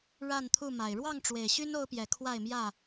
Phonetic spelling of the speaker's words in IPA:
ɻa˥˨nt̪ʰu˥˨ma˨˩ɪ̯ ɻwɑ˥˨ŋʈ͡ʂwe˨˩ɪ̯ɕy˦n o˦ʊ̯pjɛ˨˦kʰwa˥˨ɪ̯mjä˥˨

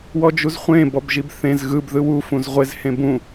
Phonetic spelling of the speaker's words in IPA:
wɔd͡ʒuzχʷẽ bɔbʒibθẽz ɣɯb ðɯwu fũzʁʷez hẽbũ

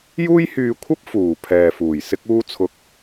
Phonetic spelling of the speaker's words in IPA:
juː˥jhyː˧kʷʰɐ˥p̚ fuː˨ pʰɛː˨fuː˨˩j sɪ˥k̚uː˥t͡sʰʊ˧k̚

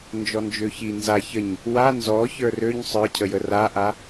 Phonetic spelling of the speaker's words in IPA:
nd͡ʒɔnd͡ʒøçi nza çəɲ | wa nzɔ çə˞røɲ sˤə˞cʰəjə raʔa

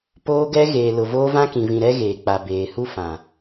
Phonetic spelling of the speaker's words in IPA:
poː˦ɡɛ˦ ɣeː˨lʊ˨ voː˦ vã˦kĩ˨vĩ˨ɾɛ˦ ɣeː˨k͡pa˨ beː˨ hu˦fã˨

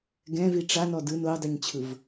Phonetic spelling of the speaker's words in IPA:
ɡɛ̃vi ʈ͡ʂanɔ dɯn odˤɯɲt͡ɕʰɯv

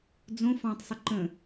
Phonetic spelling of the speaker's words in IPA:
d͡zõ fɑ̃tˤsˤə ǃə̃

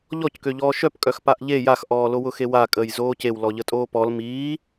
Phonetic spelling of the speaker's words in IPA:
ʎɔckøʎɔː ʃœpkʼœx paʔʎe jaxʔɔːlo wʊxewa kʼəːjzoːcew lɔʎətʼoːpɔl miː

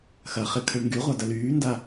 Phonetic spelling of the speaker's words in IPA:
xɐχɪkʰəɭ ŋɡyʁʷadɐ lyːnda

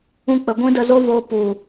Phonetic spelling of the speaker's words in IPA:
ũ˦k͡pə˧ ɡʷĩ˦də˧zo˦voː˧ pu˨

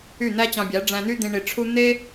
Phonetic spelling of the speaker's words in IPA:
y˦˨n̪æ˦t͡ɕɑ̃˧bʲæ˨˦ ɖ͡ʐæ̃˧n̪y˦d̪ĩ˧ ɳi˧ʈ͡ʂʰu˦ n̪e˦

